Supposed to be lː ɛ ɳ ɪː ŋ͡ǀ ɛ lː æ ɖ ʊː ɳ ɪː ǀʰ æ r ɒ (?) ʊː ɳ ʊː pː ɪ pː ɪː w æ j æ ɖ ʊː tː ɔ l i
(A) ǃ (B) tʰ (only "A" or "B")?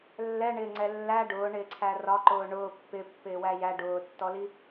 A